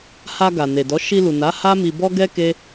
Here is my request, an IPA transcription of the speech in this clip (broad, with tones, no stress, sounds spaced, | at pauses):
h a˧ ɡ a˨ n e˨ d ɔ˨˦ ʃ i˧ l u˨ n a˨˦ h a˦ m i˧ b ɔ˦ ɡ ɛ˦ k e˦